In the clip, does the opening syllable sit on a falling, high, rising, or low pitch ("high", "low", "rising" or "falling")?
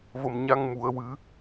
low